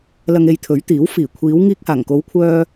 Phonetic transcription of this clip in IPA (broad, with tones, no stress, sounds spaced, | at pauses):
l ɐ˧ ŋ e˧ j t̪ʰ ɵ˨˥ ɥ t̪ iː˨˥ w f iː˨˩ kʷʰ iː˨˧ w ŋ iː˧ k̚ h aː˨˩ ŋ k o˨˧ w kʷʰ œː˧